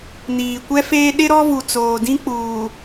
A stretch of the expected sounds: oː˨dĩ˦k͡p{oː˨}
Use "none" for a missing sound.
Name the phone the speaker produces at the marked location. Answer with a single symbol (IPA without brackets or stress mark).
uː˨